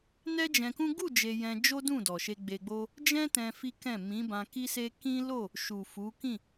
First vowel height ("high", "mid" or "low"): mid